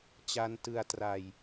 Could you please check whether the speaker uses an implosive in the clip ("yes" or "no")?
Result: no